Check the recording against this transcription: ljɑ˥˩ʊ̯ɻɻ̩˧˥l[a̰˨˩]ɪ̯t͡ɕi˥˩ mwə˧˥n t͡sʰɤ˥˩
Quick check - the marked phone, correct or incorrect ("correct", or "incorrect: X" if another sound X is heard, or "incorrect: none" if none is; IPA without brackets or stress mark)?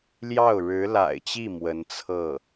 correct